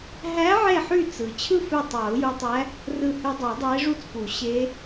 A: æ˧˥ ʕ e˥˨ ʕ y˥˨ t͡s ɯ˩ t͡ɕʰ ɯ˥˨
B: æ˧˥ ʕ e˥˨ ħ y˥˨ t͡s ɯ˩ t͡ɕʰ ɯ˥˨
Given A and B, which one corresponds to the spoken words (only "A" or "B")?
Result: B